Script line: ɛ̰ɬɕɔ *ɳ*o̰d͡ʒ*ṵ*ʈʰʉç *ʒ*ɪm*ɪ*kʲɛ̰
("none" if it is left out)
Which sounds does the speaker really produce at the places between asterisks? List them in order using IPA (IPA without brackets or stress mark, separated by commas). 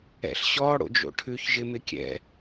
ɽ, o̰, ʒ, ɪ